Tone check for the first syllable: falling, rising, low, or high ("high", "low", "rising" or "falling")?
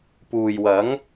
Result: low